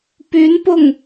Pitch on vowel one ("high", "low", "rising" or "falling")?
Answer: rising